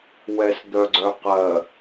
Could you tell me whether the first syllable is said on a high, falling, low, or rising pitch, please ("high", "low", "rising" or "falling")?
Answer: low